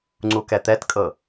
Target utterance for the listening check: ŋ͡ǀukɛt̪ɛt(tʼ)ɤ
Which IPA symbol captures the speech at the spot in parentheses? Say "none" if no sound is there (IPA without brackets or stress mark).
kʼ